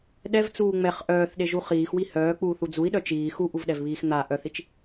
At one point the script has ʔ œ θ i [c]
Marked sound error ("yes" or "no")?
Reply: yes